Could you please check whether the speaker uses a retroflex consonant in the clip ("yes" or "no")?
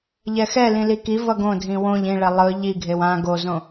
yes